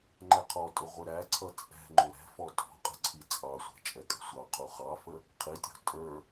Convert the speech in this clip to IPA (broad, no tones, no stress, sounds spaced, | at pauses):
ŋ͡ǃ ɛ qʰ ɔ tʼ ʊ ʁʷ ɪ ɾ æ ǀʰ ʌ t͡sʼ ɛ̤ ŋ͡ǃ ʊ ɾ ɛ̤ f ɔ tʼ ɔ̤ qʼ ə̤ ǀʰ i t͡sʼ ɑ sʷ ɛ̤ t͡ʃʼ ɛ kʼ ə̤ sʷ ɑ qʰ u χ ɑ f ə | qʰ i tʲ ɔ̤ tʼ ə˞